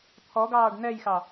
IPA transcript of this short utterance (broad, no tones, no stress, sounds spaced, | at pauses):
t̪ʰ ɔ ɡ ɑː ɖ n ɛ j x ɑ